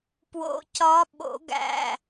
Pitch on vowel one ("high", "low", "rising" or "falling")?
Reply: rising